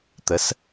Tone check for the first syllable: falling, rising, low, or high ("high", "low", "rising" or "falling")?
rising